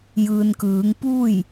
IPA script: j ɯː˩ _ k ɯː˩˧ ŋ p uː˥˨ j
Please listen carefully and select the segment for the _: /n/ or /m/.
n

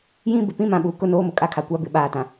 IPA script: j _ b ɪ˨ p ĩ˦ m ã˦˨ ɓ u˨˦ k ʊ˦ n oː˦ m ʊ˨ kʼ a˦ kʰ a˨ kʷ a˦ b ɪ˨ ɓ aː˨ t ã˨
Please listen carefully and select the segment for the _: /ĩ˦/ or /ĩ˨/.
ĩ˦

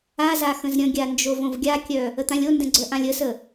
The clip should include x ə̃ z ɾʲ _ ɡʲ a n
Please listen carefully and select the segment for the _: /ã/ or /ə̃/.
ə̃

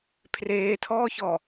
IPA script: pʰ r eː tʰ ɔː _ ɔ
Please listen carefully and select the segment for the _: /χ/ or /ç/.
ç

